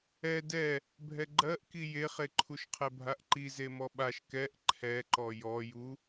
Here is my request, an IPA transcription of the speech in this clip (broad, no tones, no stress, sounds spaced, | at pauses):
ɛ d ɛ | bʱ ɛ ɡ͡ǃ ɜ ʔ k i j e χ e ǃʰ u ʃ qʰ ɛ bʱ a ʔ ǃ i z e m ɔ ɓ a ʃ k ɛ ʔ ǃʰ ɛ ǃ ɔ j ɔ j u